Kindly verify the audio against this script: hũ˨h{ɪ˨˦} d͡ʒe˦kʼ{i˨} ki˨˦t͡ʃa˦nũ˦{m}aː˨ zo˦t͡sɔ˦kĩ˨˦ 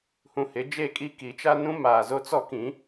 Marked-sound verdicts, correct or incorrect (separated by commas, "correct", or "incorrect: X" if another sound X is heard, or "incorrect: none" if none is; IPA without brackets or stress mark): correct, incorrect: i˦, correct